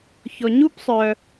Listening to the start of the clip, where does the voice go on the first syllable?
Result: low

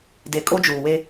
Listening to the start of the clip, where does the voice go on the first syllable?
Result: low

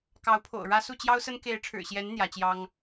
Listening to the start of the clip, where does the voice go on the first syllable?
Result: rising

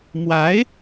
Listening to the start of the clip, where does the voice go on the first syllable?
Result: rising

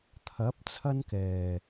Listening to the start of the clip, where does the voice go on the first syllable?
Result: rising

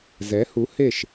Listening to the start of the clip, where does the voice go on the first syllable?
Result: rising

